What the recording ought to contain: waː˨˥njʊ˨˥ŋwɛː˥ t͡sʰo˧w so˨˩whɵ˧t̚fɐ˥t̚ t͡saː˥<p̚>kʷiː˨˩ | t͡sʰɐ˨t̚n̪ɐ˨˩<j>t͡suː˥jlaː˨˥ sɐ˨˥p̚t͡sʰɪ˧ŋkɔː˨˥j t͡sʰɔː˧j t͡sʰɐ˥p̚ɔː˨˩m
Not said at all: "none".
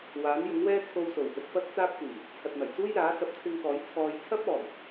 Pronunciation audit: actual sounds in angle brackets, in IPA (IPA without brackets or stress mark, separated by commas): p̚, j